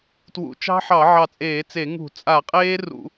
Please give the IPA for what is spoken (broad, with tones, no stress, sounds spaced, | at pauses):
t w ṵ˧˩ t͡ʃ ɑ̤˦˥ ħ ɑ˧˩˧ ʕ ɑ˧˩ t͡sʼ eː˧˩˧ t͡s e˧˩˧ ŋ ṳ˧˩˧ t͡sʼ a˧˩˧ qʼ eː˦˥ r ṵ˧˩˧